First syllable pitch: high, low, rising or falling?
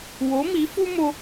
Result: rising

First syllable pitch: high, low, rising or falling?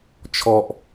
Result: low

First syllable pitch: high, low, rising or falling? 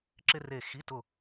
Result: high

